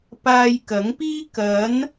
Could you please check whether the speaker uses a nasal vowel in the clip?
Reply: no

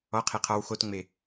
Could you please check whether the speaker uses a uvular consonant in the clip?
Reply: yes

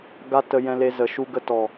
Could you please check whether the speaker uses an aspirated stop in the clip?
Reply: no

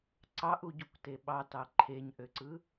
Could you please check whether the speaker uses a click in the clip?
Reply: yes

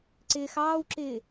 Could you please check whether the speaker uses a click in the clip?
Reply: yes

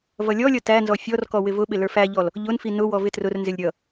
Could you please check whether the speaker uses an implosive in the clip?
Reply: yes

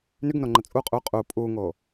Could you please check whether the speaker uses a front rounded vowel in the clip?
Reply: yes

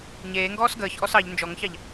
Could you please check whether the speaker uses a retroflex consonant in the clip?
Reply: no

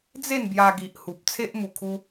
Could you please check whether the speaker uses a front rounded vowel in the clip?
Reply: no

